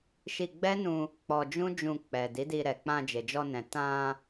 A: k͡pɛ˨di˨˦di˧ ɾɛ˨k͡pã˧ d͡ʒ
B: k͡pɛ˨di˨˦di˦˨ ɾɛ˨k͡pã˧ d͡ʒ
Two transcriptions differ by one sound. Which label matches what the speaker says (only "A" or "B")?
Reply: A